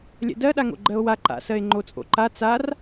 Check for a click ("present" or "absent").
present